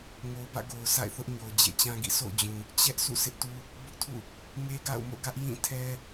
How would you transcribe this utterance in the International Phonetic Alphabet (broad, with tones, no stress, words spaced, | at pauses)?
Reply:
ŋo˨ʊ̯bä̰˦˨ɡo˨ʊ̯ sa̰˦˨ɪ̯θʊ˦ʔɲo˨ʊ̯ d͡ʑḛ˦˨t͡ɕã˦ɡḭ˦˨ so̰˦˨ʊ̯d͡ʑũ˨ | t͡ɕɛ˦ʔ sʰṵ˦˨sɪ˦ʔtu˦ | bʊ˦ʔtʰṵ˦˨ | ŋe˦ɡa̰˦˨ʊ̯mo̰˦˨ɡä˦ʔ jĩ˦˨tʰɛ˦